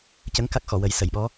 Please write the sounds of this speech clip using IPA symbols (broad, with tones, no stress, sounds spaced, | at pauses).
c ə˧˥ ŋ k a˦˥ k̚ x ɔ˨˩˨ w ə˨˩˦ j s ə˨˩˨ j ɓ ɔ˧˥